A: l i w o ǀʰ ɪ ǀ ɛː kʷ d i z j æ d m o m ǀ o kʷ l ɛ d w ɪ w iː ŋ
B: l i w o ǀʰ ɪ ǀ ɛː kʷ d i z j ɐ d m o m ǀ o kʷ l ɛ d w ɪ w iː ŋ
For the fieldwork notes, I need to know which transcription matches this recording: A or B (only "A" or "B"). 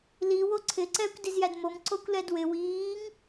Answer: A